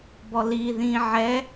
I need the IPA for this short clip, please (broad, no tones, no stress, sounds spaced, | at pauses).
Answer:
b ɔ l i ð ĩ ʕ ɛ